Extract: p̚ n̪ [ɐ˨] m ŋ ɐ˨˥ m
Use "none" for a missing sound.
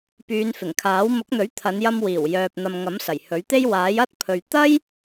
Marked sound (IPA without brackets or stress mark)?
ɐ˨